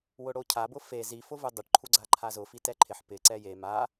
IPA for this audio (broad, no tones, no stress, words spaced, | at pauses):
wʊɽocʰa bʊfe zi fʊvudˤɪʈ ǃʰuɡ͡ǀaǃʰazʊ fitɛǃʰɪħ pɪ ǀɛje ma